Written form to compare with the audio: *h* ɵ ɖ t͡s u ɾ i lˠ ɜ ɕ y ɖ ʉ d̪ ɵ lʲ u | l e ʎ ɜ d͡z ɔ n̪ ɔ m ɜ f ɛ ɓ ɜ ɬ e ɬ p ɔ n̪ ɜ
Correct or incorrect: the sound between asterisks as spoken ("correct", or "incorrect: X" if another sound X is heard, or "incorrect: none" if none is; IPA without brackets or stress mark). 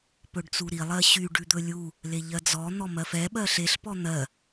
incorrect: p